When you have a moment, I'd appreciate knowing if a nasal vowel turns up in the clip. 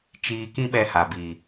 yes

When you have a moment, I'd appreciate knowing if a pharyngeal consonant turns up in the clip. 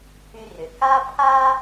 no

